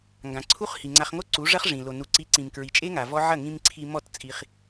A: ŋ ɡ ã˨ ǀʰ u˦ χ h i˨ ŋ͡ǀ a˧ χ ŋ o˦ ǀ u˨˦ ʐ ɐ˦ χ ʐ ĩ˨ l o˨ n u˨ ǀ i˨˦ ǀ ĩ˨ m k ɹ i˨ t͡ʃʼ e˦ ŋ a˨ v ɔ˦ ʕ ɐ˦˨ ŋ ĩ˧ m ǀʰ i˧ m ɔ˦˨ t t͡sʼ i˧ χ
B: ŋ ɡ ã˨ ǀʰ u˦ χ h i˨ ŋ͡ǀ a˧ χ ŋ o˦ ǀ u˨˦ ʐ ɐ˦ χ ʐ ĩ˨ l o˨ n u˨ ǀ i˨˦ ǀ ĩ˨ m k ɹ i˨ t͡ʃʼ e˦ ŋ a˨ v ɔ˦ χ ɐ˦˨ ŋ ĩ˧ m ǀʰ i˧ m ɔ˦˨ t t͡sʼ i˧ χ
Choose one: A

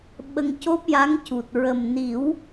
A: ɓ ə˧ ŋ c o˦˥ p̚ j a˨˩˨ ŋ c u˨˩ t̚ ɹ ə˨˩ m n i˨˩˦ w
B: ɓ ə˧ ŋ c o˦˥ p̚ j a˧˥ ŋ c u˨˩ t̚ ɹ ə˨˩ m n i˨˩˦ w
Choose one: B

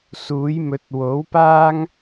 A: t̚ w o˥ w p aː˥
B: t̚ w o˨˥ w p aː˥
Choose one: B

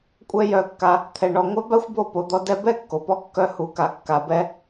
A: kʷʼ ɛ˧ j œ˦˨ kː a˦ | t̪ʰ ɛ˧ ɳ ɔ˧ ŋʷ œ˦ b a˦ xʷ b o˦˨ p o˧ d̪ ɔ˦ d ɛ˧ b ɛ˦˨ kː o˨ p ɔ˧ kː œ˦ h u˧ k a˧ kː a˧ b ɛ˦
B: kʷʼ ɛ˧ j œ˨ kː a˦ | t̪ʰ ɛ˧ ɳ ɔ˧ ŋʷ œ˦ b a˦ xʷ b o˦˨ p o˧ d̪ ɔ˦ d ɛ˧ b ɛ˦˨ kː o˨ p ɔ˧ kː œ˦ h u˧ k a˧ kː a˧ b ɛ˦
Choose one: A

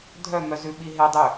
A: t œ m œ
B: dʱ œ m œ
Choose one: B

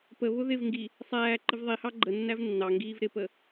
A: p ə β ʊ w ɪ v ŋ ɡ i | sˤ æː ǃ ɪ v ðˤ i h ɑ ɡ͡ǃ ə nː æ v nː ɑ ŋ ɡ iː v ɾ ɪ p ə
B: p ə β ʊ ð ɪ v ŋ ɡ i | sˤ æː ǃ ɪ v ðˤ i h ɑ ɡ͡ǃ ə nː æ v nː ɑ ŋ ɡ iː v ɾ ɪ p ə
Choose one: B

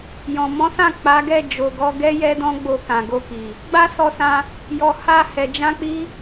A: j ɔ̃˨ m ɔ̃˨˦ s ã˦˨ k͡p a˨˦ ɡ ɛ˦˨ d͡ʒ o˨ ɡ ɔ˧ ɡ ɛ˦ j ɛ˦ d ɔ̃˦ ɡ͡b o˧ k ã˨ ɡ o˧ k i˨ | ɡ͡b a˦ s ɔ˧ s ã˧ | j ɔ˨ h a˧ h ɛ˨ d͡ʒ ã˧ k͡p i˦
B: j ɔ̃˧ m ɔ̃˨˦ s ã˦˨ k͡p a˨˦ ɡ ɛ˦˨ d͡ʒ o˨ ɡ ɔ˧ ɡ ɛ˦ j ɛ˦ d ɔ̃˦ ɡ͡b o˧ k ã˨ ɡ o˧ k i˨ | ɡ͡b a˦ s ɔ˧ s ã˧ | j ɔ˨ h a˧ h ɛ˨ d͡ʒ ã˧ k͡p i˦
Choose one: A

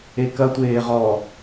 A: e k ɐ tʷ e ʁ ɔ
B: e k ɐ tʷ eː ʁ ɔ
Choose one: B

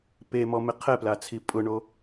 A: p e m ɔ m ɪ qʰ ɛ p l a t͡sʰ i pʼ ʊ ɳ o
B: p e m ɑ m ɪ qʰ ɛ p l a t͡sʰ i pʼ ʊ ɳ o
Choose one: A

